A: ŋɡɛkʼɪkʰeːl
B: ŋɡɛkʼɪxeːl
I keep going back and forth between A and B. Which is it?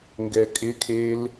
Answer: A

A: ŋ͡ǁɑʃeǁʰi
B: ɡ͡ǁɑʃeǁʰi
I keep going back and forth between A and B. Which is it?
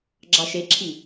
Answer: B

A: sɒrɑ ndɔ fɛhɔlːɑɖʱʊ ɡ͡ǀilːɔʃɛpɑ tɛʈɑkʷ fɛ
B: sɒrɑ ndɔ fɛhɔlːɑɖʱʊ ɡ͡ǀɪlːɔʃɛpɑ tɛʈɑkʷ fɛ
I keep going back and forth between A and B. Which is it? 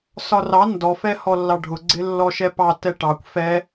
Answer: B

